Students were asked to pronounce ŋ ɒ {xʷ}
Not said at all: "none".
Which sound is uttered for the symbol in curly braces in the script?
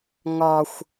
xʷ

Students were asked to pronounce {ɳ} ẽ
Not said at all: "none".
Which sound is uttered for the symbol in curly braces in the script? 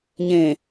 ɲ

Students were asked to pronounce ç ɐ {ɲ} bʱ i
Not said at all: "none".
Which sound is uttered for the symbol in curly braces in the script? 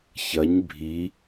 ɲ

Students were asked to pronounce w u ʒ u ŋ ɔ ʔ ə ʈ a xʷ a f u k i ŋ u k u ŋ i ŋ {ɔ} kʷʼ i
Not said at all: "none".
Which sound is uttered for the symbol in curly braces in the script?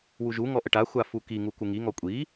ɔ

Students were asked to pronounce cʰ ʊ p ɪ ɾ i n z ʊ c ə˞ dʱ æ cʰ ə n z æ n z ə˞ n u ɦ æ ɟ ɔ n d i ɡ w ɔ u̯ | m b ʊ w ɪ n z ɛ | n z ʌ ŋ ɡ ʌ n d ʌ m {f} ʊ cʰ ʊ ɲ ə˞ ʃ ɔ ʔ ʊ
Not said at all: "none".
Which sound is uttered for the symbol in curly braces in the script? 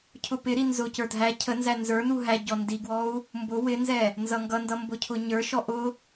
b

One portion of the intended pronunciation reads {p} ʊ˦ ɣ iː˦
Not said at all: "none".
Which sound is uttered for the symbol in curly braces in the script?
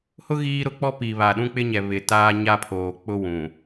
h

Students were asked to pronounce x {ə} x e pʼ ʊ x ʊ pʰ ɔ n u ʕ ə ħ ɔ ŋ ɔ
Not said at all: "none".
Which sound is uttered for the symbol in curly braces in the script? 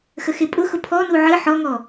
ə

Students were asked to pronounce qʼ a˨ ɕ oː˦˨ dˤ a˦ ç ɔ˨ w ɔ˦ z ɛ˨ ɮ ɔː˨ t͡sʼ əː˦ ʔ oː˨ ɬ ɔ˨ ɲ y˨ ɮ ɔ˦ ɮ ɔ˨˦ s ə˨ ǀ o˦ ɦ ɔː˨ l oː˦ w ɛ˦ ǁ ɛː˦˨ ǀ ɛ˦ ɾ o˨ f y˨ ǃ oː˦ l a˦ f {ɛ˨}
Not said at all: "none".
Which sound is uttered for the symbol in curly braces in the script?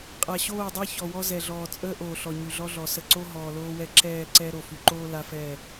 ɛ˦˨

